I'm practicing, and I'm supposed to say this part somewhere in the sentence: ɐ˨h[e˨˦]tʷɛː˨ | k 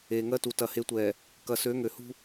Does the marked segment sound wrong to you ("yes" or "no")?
no